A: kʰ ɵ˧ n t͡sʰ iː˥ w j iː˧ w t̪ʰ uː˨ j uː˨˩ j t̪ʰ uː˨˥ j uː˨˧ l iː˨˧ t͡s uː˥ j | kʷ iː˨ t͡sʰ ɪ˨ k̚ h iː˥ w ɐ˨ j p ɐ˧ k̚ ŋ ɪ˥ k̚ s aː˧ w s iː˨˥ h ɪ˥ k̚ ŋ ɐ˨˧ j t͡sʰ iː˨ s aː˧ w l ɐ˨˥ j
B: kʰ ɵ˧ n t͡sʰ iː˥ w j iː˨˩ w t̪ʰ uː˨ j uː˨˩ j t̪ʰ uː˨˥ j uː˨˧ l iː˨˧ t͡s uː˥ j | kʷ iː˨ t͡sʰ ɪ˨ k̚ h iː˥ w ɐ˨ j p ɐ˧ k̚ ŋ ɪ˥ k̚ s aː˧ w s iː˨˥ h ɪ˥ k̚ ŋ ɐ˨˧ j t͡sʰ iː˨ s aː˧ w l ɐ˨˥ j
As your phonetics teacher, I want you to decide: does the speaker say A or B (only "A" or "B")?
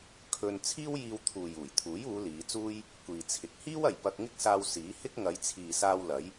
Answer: A